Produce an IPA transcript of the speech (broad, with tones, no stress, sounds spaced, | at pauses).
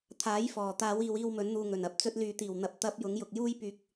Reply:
t̪ʰ aː˨˥ j f ɔː˨˩ t̪ aː˨˧ w iː˨ w iː˧ w m ɵ˨˥ n n̪ uː˨ ŋ ɵ˨˩ n ɐ˨˥ p̚ t͡s ɵ˧ t̚ l yː˨˧ t̪ iː˨˩ w n̪ ɐ˨ p̚ t̪ ɐ˥ p̚ j ʊ˨˧ ŋ j ʊ˨ k̚ j uː˥ j p yː˧ k̚